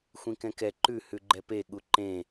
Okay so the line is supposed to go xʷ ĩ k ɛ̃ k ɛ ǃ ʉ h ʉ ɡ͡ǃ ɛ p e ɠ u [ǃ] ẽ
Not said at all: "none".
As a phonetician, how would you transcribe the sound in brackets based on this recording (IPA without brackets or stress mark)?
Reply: ǃ